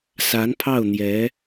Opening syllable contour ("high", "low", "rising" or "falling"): rising